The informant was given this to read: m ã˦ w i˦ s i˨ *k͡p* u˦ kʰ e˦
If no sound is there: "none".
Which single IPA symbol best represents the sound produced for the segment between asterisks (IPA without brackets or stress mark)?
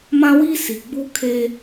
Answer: ɡ͡b